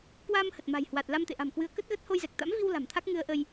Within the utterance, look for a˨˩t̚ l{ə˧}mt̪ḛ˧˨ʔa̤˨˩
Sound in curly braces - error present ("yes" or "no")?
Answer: yes